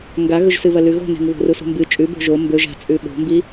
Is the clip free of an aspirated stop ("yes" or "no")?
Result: yes